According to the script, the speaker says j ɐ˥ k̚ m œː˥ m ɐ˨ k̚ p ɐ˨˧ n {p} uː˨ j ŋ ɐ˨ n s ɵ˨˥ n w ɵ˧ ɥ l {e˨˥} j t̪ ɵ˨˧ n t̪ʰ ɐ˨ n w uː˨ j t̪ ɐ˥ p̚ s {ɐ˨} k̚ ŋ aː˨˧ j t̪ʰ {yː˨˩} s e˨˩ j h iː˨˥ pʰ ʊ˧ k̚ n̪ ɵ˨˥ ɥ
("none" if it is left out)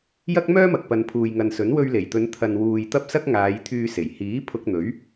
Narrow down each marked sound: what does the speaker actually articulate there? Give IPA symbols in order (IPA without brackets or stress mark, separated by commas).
pʰ, e˨˩, ɐ˥, yː˧